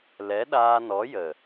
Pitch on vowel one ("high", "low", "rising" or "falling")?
rising